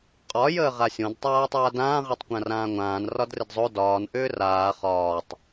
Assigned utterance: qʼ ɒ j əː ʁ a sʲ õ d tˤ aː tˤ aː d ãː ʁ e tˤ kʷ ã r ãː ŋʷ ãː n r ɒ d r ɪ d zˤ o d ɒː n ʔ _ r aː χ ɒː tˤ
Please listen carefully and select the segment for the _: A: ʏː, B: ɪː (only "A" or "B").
A